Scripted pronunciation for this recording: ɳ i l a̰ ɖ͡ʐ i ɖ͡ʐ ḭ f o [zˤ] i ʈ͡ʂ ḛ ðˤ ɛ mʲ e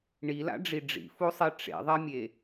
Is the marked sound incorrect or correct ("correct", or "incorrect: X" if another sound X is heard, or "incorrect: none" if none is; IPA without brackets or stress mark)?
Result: incorrect: sˤ